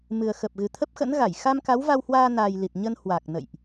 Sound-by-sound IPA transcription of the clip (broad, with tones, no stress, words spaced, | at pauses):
mɨ˨˩ə̯xə˨˩p̚ɣɨ˨˩ t̪ʰə˦˥p̚xə̰˧˥nɣa˧˩j xa˧m ka˨˦wva˧whwaː˧naː˨˩j li˨˩t̚ɲə˧n hwa˨˩k̚ nə̰˧˨jʔ